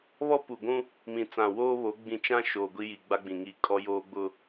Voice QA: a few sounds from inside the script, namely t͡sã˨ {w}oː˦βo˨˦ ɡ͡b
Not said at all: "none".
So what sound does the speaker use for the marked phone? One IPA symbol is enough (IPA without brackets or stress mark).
w